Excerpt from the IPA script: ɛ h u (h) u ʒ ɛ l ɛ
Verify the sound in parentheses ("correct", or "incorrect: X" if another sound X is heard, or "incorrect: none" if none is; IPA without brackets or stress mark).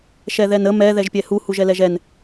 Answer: correct